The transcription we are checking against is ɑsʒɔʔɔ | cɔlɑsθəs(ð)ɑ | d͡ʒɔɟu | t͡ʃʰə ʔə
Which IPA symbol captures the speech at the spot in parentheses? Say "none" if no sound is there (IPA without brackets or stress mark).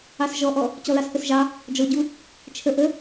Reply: ʒ